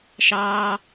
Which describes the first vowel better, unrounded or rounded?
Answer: unrounded